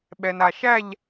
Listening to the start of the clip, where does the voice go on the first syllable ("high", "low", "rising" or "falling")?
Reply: low